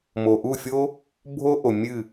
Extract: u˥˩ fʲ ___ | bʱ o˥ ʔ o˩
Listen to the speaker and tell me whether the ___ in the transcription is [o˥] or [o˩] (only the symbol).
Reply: o˥